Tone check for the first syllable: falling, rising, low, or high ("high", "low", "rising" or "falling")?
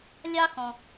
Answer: high